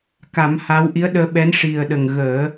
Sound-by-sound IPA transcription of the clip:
ka˨˩˦m ha˧˥w ʔi˧˥ə̯ɗəː˧ɓɛ˧˥n ʂi˨˩ə̯ɗə˨˩ŋɣəː˨˩˦

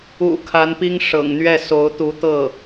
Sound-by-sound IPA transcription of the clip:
ṵ˨˩ kʰa˧˥npi˥ŋ ʂɤ̰˨˩ŋn̪ɥɛ˥˩ so˧˥ʊ̯t̪u˧˥t̪ɤ˥˩

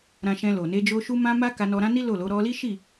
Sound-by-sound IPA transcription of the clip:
ɾã˧ʃɛ̃˧ lo˨ne˧d͡ʒo˧ ʃu˧mã˧ ma˦ ka˧nɔ˧ɾã˦ni˦ lo˦˨lo˨˦ ɾɔ˧li˦ʃi˦˨

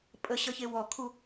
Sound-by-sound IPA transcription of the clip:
pʼəɕʌçe wɔkʰu

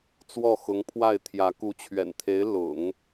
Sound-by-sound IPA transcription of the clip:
t͡swɔ˥˩xʊ˧˥ŋpʰwa˥˩ɪ̯ t̪ʰjä˧˥ ku˧˥t͡ɕʰɥɛ̰˨˩nt̪ʰe˧˥ɪ̯ lʊ̰˨˩˦ŋ

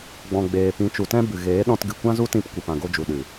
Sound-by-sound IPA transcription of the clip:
ɡ͡bɔ̃˨ɡ͡beː˨pĩ˨˦ t͡ʃu˨tɛ̃˦bɨ˨ ɣeː˨˦ɗɔ̃˧tɡɨ˨ kʷã˦zu˦tĩ˧p kʷi˨pã˨ɡo˧d͡ʒu˨ ɗɨ˨

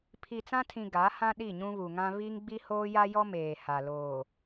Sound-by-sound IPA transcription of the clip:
pʰi˨t͡sã˦tʰĩ˨ ɡa˨˦hã˦ ɗi˦˨ɲũ˦βu˨ŋã˦ βi˦ŋɡ͡bi˦ hoː˦ja˦jɔ˦ meː˨ha˨ loː˨

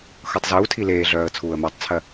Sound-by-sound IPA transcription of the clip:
xɤtˤzuːtʰi leːɮœːə̯ t͡sʰuːə̯mœtˤt͡sʰɜ

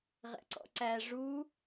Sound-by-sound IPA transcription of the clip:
ʁɛ̰ǀɔ̰ǀæ ʐu

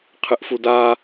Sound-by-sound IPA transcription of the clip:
qʰɨʔfuda

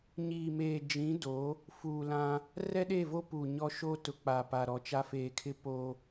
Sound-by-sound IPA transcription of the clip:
ɲiː˨meː˨d͡ʒĩ˨˦ do˨˦ | fuː˨lã˦ | rɛ˦ɗe˦˨vo˦ puː˨ ɲɔ˦ʃoː˦tʊ˨ k͡pa˨ pa˨ɾɔ˨t͡ʃa˦ feː˨kʰɪ˦po˦

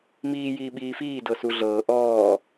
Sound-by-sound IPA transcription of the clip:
miː jiːɓiːfiː dɤsuɮɤː ʔɔː

